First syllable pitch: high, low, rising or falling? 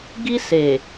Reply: high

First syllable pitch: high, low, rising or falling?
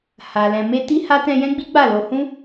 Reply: low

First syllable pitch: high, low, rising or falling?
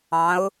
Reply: rising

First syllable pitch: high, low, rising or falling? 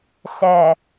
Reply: low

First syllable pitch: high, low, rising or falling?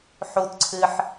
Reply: low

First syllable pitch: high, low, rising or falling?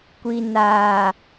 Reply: low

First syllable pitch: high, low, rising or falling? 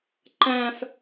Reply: high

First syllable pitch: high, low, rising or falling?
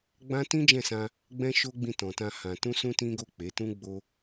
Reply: high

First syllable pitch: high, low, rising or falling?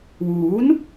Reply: rising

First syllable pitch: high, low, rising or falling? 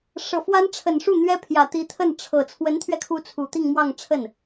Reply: low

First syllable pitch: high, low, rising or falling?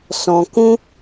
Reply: low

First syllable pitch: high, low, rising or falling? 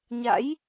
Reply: rising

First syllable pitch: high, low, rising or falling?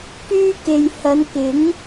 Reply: high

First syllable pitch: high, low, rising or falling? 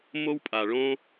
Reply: high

